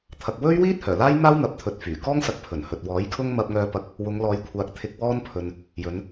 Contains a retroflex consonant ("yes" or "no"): no